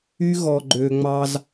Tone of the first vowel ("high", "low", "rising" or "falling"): high